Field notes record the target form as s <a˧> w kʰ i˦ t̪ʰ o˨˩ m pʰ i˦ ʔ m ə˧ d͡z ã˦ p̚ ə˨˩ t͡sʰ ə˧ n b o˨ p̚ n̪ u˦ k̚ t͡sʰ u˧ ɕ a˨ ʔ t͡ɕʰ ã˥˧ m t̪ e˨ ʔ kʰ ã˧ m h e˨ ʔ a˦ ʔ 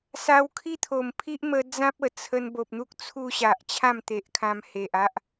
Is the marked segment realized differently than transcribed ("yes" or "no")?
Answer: no